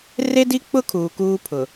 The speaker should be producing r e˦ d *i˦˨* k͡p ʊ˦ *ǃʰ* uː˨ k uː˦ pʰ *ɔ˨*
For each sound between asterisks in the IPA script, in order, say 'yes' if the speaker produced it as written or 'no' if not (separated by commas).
no, no, no